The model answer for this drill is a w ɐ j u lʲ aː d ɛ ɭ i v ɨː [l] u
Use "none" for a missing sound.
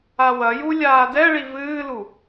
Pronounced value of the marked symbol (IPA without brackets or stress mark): l